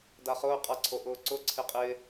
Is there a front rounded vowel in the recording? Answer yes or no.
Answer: no